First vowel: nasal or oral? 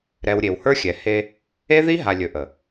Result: oral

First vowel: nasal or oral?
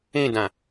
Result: nasal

